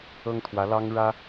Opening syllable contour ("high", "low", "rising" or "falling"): high